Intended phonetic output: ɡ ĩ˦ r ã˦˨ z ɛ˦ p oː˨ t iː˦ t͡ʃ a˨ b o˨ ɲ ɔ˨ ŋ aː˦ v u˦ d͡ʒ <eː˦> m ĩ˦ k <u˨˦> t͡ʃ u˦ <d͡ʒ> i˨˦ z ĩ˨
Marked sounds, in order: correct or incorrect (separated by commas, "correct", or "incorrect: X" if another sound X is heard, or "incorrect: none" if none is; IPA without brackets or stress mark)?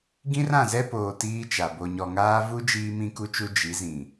incorrect: iː˦, incorrect: u˦, correct